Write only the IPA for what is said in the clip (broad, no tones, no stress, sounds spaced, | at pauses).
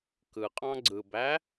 k ɯ qʼ ɑ̃ ɡ͡ǀ ɯ b æ